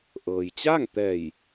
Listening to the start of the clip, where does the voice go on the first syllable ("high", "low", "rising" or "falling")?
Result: low